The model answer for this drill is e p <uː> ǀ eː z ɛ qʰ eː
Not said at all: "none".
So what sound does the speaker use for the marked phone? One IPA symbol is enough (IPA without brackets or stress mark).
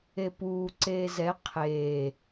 uː